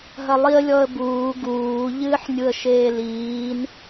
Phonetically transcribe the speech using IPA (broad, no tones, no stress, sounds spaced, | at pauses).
ɦ ɐ lˠ i ə̯ lʲ ɔ ə̯ b uː ɡ uː ʎ ɨː ħ nʲ u ə̯ ʃ eː l iː n